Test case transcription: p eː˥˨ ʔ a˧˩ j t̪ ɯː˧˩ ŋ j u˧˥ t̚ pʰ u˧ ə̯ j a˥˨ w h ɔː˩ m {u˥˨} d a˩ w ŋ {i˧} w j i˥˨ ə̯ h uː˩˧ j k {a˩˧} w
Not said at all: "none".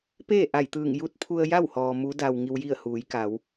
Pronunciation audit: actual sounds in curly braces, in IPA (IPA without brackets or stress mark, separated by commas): u˩˧, i˧, a˩˧